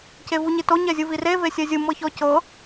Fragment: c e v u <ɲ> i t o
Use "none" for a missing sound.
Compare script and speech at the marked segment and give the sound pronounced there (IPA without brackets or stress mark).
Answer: ɲ